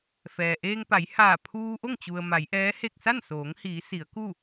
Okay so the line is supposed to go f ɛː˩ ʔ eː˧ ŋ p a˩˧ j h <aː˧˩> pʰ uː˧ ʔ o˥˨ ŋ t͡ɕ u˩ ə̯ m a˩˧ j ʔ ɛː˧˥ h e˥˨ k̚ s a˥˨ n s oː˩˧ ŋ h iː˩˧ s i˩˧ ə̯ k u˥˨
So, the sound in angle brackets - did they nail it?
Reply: yes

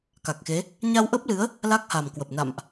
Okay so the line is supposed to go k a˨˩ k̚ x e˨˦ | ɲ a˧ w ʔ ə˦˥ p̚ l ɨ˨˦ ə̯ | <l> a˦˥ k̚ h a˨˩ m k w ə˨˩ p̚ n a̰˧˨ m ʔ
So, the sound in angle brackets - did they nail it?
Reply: yes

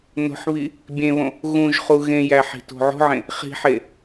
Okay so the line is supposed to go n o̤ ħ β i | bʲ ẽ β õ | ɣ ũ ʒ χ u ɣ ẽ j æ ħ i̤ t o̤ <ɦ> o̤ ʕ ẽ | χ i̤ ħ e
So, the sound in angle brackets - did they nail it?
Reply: no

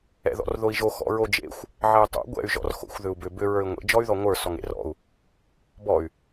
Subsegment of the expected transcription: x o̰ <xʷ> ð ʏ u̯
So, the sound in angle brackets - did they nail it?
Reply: yes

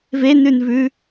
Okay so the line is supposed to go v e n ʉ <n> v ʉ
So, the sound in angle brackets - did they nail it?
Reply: yes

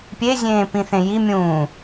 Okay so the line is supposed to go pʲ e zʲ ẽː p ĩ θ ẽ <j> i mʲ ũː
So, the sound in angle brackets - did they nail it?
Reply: yes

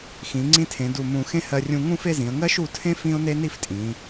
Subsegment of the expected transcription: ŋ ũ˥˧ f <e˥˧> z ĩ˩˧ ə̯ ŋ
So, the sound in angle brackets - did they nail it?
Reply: yes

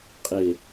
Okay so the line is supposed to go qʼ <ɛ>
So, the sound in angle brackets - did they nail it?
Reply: no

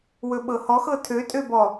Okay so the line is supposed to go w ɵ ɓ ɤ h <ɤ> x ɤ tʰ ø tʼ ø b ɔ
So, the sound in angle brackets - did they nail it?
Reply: no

